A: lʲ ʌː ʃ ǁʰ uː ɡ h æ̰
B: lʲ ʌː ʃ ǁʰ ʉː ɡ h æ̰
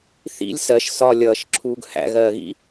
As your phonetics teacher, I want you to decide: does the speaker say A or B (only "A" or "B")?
A